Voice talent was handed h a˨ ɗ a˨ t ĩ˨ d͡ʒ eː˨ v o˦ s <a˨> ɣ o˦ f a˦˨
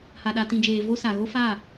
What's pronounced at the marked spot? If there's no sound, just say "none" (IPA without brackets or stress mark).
a˨